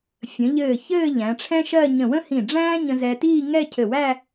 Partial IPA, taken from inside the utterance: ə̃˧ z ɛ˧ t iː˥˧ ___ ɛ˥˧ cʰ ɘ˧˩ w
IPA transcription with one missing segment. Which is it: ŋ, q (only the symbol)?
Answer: ŋ